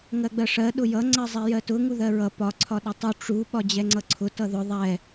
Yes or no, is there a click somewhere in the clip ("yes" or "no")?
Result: yes